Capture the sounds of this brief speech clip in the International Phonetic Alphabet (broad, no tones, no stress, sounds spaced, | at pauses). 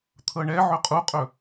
t̪ʰ ɤ ɳ ɛ ʕ ɵ qʼ u qʼ ɵ